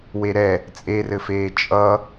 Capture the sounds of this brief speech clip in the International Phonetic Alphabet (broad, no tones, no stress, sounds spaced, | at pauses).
w e ɾ ɛ | t͡sʼ e r ɘ f eː t͡ʃʼ ʌ